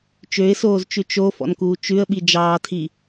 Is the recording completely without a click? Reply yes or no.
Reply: yes